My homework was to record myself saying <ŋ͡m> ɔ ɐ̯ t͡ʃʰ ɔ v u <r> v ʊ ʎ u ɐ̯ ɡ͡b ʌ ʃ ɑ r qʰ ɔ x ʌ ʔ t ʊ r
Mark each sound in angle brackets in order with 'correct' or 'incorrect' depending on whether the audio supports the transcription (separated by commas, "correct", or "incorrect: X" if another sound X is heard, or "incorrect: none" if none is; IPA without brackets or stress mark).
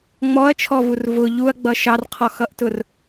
correct, correct